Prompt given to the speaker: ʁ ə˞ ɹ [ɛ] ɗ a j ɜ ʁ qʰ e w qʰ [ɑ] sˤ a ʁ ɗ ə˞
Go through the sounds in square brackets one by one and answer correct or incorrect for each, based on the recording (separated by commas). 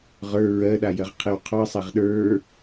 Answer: incorrect, correct